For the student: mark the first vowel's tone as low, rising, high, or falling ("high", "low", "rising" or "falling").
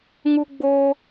high